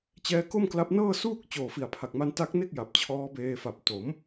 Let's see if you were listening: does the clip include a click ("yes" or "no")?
no